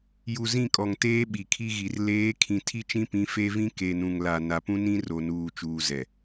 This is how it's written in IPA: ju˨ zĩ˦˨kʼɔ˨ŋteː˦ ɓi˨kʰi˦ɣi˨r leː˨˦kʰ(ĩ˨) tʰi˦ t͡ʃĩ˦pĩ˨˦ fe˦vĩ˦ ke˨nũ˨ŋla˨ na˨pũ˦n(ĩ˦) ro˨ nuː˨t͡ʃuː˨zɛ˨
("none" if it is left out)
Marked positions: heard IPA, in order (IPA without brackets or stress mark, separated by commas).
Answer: ĩ˨, ĩ˦